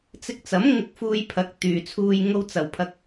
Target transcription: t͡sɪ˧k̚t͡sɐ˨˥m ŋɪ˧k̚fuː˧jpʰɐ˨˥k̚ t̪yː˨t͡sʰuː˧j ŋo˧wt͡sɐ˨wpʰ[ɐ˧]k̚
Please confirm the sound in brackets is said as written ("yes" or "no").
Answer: yes